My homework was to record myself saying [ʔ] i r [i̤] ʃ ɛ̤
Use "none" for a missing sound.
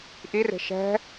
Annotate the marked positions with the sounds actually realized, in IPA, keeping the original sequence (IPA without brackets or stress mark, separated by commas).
ʔ, e̤